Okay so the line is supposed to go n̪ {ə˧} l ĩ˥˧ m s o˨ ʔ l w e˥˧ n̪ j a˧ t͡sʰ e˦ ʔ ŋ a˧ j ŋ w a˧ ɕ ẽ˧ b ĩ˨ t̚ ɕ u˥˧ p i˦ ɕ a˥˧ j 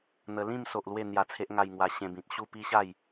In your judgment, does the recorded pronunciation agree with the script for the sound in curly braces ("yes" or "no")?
yes